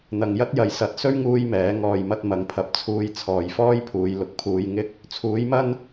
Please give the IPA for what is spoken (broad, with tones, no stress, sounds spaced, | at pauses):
n̪ ɐ˨ ŋ j ɐ˥ t̚ j ɐ˨ j s ɐ˨˥ t̚ s ɵ˥ ɥ ŋ uː˥ j m ɛː˨˥ ŋ ɔː˨ j m ɐ˧ t̚ m ɐ˨˥ ŋ pʰ ɐ˨˥ p̚ t͡sʰ uː˧ j t͡sʰ ɔː˨ j f ɔː˥ j pʰ uː˨˧ j l ʊ˨ k̚ pʰ uː˧ j ŋ ɪ˥ k̚ | t͡sʰ uː˨˥ j m ɐ˥ n